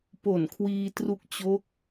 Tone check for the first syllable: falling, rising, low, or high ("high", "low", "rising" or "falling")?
low